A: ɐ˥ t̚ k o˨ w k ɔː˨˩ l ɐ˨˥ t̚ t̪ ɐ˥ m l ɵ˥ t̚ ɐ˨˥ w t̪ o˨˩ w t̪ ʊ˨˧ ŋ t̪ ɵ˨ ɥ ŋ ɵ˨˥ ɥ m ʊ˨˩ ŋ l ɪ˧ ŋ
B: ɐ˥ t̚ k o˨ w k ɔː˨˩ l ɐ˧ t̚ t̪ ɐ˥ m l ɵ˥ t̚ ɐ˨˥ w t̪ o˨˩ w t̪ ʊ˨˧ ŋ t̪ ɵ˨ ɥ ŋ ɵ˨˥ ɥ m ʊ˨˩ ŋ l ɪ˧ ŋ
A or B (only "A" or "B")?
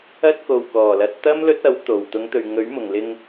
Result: B